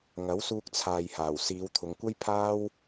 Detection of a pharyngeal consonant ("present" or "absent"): absent